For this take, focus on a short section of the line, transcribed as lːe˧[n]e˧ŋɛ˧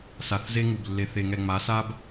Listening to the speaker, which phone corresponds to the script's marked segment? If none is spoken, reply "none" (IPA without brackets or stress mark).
θ